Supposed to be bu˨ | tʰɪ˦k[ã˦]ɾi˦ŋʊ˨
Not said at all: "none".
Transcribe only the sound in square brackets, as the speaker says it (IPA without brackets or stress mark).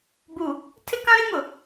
ã˦